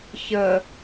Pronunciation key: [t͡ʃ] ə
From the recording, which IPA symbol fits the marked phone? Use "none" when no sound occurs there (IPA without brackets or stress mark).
ç